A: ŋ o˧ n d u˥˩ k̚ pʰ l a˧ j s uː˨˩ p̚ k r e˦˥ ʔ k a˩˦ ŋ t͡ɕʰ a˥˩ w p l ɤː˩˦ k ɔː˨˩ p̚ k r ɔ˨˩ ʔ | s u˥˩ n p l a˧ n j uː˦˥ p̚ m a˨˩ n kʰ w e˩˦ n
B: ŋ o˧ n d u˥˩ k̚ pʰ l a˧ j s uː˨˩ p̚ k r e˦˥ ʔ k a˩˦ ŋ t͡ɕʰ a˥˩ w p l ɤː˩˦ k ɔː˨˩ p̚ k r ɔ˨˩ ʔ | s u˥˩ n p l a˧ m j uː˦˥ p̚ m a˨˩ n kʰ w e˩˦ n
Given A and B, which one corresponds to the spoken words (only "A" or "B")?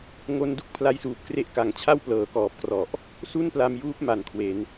B